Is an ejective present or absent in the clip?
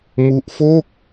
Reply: absent